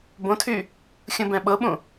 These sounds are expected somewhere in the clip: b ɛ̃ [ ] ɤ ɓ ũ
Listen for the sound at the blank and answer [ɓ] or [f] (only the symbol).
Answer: ɓ